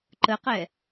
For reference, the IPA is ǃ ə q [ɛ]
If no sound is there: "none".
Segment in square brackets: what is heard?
ɛ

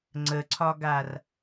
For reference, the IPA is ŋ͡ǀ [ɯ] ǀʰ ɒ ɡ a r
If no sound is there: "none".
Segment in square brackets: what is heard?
ə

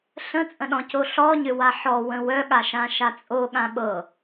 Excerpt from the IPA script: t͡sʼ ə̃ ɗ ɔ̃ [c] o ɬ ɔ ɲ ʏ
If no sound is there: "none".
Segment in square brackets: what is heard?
c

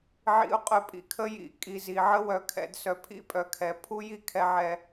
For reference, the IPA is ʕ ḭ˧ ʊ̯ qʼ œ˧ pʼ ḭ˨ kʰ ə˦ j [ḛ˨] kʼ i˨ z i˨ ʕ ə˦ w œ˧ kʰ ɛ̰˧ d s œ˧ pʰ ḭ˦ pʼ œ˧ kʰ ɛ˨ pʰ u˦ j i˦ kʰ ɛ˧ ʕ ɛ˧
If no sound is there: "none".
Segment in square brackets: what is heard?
ḭ˨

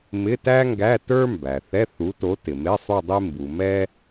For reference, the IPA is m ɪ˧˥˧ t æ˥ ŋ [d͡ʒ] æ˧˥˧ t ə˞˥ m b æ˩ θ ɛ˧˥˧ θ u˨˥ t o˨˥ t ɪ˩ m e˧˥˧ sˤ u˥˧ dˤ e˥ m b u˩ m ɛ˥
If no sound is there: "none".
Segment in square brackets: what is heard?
ɡ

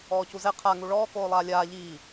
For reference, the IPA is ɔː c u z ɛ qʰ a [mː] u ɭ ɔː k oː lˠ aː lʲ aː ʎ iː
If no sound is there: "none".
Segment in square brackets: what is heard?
ŋ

